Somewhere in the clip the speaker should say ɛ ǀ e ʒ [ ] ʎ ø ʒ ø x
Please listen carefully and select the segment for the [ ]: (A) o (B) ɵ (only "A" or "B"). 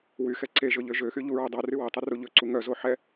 B